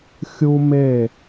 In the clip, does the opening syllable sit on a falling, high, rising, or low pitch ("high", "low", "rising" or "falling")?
high